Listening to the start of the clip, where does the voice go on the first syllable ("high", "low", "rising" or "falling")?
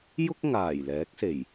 high